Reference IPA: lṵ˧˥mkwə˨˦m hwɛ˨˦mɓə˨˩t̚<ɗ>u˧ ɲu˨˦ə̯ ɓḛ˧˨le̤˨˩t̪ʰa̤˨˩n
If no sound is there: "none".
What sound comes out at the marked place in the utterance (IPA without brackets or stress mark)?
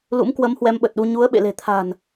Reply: ɗ